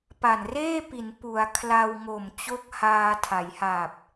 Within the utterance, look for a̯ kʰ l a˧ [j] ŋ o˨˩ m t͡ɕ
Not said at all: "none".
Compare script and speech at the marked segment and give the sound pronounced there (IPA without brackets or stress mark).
w